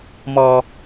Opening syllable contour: low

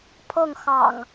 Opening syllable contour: falling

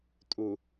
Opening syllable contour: low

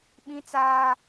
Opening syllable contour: high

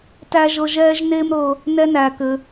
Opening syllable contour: high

